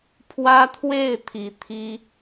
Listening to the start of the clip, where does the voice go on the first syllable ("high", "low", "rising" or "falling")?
high